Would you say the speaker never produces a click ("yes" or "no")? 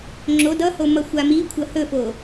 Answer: no